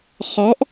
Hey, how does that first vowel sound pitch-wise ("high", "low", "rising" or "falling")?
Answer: rising